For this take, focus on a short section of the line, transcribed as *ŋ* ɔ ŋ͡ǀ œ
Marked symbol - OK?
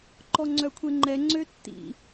no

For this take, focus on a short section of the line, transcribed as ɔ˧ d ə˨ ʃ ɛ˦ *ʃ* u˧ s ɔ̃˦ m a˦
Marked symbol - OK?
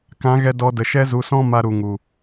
no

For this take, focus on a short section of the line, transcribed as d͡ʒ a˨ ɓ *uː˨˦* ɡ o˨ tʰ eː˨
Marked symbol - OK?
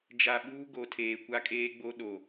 no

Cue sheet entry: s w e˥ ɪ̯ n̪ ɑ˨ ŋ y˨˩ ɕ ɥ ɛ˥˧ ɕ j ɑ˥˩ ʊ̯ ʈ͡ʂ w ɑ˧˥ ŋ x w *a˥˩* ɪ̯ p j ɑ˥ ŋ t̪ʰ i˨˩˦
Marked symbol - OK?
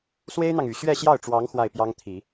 yes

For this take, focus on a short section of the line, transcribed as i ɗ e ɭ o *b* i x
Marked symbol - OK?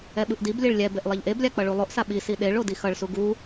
no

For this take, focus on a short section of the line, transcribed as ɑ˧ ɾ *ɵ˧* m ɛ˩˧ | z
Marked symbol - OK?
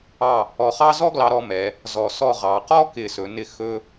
no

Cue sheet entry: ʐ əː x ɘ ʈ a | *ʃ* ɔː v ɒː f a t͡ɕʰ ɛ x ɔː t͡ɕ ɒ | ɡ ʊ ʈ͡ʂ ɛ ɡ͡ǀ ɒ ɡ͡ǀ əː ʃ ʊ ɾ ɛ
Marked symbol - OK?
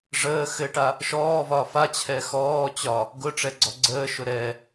yes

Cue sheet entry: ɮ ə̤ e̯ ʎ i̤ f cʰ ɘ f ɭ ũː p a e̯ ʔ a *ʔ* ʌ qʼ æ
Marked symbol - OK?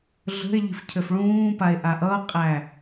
yes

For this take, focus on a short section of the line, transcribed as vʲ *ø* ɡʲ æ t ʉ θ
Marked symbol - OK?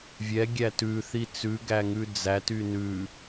no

